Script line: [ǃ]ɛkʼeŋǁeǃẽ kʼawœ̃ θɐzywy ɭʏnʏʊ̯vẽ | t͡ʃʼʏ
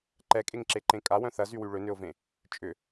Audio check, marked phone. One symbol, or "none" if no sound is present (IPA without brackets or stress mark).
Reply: ǃ